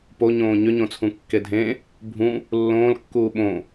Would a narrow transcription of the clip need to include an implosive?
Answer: yes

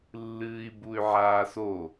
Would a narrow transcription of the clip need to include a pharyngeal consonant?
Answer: yes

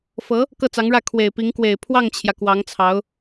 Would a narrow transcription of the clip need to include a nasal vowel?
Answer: no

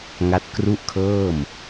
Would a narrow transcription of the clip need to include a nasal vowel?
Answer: no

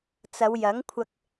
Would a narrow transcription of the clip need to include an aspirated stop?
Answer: yes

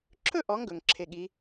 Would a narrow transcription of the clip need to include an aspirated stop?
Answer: yes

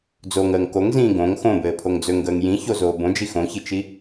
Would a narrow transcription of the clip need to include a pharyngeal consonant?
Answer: no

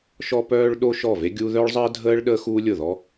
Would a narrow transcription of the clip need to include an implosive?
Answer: yes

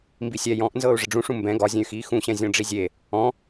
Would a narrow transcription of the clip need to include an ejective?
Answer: no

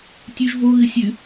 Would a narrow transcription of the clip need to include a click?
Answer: no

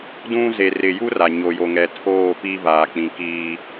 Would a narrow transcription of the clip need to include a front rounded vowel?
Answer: no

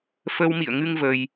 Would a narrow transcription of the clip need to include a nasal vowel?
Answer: no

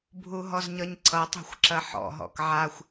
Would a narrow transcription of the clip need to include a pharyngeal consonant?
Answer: yes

